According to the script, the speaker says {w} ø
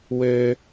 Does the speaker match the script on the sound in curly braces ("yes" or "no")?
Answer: yes